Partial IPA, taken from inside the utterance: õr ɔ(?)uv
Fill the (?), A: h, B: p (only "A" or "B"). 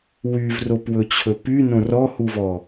A